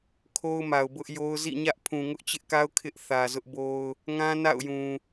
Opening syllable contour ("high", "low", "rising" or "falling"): high